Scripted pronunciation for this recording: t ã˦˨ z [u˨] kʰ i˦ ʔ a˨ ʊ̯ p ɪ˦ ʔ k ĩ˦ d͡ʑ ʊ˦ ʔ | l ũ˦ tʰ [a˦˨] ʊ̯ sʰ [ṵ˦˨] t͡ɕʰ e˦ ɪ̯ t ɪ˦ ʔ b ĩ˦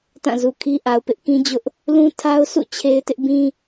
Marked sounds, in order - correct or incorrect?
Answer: correct, incorrect, correct

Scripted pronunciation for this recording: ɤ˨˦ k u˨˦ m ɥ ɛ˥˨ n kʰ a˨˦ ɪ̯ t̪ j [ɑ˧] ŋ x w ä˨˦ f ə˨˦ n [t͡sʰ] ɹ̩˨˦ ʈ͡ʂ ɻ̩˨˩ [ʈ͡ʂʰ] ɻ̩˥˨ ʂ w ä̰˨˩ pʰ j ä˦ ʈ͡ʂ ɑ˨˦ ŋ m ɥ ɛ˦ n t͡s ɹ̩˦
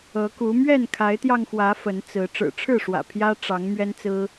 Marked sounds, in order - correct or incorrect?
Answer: correct, incorrect, correct

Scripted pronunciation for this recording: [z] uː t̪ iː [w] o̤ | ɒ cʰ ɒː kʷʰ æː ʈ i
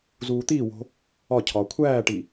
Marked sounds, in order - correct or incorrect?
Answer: correct, correct

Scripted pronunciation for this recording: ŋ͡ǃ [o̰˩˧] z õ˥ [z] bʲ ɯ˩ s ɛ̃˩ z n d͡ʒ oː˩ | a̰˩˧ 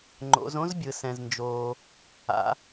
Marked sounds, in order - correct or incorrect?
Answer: correct, correct

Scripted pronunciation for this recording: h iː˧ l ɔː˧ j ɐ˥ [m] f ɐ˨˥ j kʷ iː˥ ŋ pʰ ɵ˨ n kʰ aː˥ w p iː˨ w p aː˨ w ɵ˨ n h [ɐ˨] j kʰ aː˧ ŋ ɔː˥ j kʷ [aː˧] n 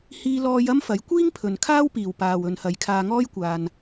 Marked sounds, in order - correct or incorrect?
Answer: correct, correct, correct

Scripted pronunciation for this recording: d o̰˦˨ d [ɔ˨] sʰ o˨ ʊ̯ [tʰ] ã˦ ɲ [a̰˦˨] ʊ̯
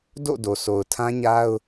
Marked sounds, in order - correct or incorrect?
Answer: incorrect, correct, incorrect

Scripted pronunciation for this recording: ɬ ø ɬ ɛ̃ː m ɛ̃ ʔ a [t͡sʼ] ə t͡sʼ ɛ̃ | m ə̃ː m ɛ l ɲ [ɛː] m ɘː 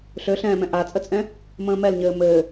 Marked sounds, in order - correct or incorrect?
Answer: correct, incorrect

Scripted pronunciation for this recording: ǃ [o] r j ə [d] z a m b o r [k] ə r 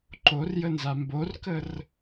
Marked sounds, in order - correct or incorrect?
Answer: correct, incorrect, correct

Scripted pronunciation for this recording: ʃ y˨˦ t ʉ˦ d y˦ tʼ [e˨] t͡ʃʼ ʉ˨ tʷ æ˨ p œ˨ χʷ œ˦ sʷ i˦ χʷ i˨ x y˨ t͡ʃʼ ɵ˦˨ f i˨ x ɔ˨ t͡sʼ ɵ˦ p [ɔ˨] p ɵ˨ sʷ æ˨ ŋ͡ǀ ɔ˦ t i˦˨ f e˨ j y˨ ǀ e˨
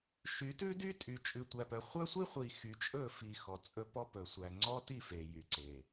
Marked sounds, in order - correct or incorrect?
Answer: incorrect, incorrect

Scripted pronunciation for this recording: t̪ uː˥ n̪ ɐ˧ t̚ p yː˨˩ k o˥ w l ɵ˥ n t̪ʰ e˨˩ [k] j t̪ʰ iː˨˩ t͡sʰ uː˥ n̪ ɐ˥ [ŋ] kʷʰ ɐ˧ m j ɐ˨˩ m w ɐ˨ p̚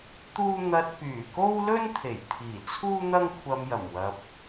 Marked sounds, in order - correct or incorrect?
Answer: incorrect, correct

